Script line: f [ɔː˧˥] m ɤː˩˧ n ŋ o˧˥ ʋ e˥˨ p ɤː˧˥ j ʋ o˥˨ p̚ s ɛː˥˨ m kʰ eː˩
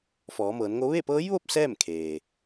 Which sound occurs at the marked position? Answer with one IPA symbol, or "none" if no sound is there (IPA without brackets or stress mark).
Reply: ɔː˩˧